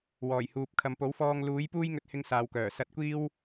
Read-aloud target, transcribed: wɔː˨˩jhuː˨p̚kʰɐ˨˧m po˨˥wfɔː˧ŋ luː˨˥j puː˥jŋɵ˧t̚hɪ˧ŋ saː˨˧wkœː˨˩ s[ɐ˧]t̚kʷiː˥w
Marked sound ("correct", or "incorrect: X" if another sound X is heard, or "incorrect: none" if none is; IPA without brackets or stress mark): correct